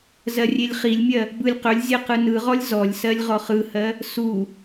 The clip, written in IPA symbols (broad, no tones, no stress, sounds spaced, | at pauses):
z ɜ rʲ e lʲ χ i lʲ mʲ ɜ | b ɯ lʲ q ɵ lʲ zʲ ɜ q ɯ n ɯ ʁ ɔ lʲ z ɔ lʲ s ɜ lʲ ʁ ɔ χ ɯ h ɜ | s u